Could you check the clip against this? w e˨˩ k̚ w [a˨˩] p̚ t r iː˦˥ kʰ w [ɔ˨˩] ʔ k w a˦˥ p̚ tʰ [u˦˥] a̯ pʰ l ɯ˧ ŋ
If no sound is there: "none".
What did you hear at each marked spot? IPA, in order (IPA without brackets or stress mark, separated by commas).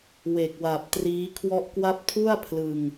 a˨˩, ɔ˥˩, u˥˩